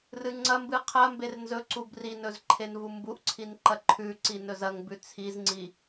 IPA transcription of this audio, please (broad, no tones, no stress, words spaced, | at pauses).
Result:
rɨŋ͡ǀɐmbɨ qʰɐmber nzɵǀub rinɵz ǃʰenvumbuʔǀʰin ǃɐǃʰʉǀi nɵzɐŋbʉ t͡sʰizŋ͡ǀi